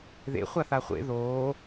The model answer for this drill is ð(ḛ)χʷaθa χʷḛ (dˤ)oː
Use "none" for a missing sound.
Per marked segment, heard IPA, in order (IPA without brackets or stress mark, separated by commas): ḛ, ð